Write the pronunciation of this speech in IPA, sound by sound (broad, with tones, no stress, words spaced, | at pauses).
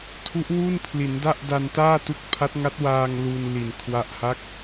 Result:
tʰu˦˥ʔwu˥˩npʰli˩˦n da˥˩ʔda˧ntaː˥˩tu˦˥k̚ pʰa˦˥t̚ŋa˦˥t̚waː˧ŋ lu˧n li˨˩nkʰwa˦˥ʔ ha˦˥k̚